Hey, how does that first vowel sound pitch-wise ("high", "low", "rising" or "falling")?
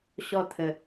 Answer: falling